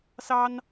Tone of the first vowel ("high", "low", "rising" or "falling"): high